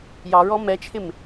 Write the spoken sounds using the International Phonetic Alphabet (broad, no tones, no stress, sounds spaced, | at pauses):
j ɑ ɹ ɔ m ɛ t͡ʃʰ ɪ m